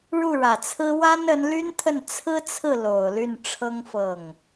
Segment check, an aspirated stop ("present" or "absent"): present